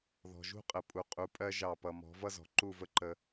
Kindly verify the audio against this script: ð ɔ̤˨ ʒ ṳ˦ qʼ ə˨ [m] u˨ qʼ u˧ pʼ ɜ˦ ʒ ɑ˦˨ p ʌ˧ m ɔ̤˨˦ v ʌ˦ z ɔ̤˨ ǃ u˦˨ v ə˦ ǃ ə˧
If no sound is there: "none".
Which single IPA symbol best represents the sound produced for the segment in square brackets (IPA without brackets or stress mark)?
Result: pʼ